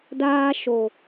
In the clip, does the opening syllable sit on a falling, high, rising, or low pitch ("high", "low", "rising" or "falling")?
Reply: high